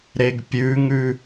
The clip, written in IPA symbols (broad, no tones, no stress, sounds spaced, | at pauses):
ɾ e ɡ pʲ ʉ ŋ ʉ